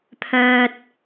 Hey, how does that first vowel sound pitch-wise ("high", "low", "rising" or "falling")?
high